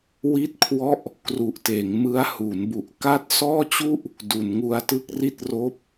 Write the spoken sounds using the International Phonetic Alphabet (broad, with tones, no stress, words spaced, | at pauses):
wi˥˩t̚kʰwɔ˥˩ʔ | kru˨˩ʔteː˩˦ŋ mɯ˦˥a̯hu˩˦nbu˨˩ʔ ka˥˩t̚ sɔː˥˩t͡ɕu˥˩ʔ | du˩˦nŋu˧a̯tɯ˥˩k̚ ri˥˩t̚roː˦˥p̚